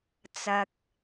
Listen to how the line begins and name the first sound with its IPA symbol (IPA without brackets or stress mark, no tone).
t͡s